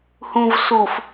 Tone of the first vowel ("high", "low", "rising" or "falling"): low